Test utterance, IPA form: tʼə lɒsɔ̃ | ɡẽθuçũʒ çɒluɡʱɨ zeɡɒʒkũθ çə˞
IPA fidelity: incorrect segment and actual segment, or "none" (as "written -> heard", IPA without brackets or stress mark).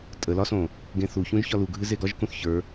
ɔ̃ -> õ